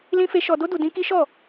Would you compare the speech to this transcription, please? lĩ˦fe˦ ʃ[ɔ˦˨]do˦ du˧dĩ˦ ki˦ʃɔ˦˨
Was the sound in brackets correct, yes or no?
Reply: no